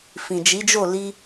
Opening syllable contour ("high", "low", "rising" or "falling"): low